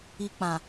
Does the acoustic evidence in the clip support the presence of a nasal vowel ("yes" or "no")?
yes